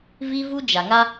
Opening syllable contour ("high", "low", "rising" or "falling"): high